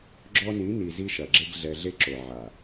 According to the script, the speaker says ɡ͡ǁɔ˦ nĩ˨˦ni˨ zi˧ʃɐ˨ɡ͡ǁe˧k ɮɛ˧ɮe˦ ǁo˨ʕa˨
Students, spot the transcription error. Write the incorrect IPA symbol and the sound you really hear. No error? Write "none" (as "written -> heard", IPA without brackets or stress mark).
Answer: k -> ɡ